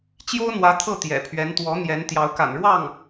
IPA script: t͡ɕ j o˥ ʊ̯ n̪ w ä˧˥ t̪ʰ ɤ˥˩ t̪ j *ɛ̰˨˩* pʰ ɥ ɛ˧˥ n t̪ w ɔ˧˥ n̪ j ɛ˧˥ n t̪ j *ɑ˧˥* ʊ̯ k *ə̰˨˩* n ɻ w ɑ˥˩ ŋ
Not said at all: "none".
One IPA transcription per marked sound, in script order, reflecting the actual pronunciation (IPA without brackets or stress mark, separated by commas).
ɛ̰˨˩, ɑ˧˥, a̰˨˩